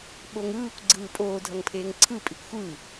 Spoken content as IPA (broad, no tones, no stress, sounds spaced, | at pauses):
ɓ o ŋ ɯː kʷ ɡ͡ǀ ɯː pʼ oː dʱ ʌ ŋ pʰ eː ŋ ǀʰ ɯ pʼ i kʷ xʷ ɯ